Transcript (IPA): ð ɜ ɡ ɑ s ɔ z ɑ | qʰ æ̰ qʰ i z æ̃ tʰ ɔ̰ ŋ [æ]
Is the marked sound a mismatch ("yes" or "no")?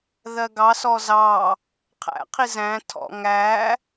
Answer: no